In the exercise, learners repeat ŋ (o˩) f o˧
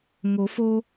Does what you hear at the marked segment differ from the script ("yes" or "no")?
yes